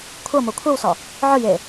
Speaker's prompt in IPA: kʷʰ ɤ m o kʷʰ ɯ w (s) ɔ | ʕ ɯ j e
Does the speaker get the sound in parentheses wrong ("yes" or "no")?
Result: no